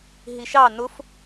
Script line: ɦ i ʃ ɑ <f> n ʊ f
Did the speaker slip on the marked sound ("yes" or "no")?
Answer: yes